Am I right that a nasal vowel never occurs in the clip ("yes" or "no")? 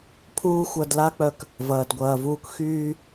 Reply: yes